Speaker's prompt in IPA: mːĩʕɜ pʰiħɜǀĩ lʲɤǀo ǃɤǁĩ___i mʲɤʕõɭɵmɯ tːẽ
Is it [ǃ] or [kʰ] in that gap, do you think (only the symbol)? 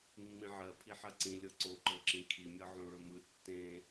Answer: kʰ